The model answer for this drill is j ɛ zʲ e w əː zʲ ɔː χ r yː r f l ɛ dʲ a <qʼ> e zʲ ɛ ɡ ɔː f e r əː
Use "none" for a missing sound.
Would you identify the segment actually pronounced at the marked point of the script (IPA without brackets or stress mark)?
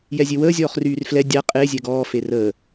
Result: qʼ